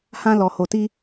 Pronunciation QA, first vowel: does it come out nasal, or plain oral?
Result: nasal